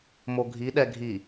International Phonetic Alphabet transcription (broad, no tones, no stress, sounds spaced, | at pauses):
m o ɡʱ i ɗ ɛ ɡʱ i